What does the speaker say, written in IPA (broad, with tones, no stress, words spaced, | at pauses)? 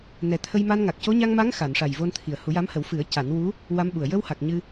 nɛ˨˩t̪ʰə˧jma˧n ŋa˨˩k̚co˧˥ ɲa˧ŋma˧˥ŋ xa˨˩˨nʂa˨˩j vo˧nt̪ʰi˨˩ə̯hu˨˩˦ja˧˥m hə˨˩˦wfɨ˨˩˦ə̯ ca˨˩˦nwu˧˥ | wa˧˥mɓu˨˩ə̯ jə˧wha˨˩k̚ ɲɨ˧